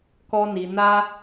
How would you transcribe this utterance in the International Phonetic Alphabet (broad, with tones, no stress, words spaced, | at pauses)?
kɔ˦ni˧ na˦